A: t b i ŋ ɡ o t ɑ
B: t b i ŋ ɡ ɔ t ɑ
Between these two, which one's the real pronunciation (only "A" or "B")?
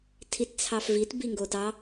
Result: A